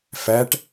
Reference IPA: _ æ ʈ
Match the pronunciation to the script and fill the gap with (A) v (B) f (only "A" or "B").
B